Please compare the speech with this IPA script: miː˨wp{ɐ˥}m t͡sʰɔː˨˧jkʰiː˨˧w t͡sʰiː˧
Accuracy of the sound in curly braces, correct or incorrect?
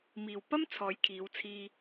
correct